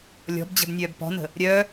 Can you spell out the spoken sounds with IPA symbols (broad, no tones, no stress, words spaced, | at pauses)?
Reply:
lʲɔ̤bd͡ʑə̤b nʲœːbpɔ̤nə̤ | ɾʲœ